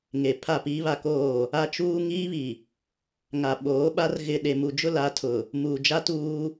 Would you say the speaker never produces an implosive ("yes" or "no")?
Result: no